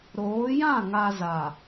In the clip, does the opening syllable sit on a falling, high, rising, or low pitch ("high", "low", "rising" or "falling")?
rising